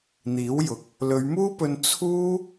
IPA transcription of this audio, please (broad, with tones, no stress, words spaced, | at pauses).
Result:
n̪iː˨˥wjʊ˨k̚ | lɵ˨˧ɥmuː˥pɵ˧n t͡sʰuː˥